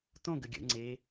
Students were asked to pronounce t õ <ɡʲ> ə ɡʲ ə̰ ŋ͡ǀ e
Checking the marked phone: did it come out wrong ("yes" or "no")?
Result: yes